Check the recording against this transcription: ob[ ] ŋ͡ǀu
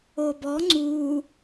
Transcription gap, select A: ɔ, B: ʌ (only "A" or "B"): A